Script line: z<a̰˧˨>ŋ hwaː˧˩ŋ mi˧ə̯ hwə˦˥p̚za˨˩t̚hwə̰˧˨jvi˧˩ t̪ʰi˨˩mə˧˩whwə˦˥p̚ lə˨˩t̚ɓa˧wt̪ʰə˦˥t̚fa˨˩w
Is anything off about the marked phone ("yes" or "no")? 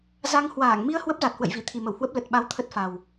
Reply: yes